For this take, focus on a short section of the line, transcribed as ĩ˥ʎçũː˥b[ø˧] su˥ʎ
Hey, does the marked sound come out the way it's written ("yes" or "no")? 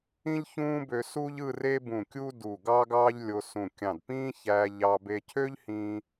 yes